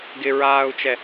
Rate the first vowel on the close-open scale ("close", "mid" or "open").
close